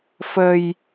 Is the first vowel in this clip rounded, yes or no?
no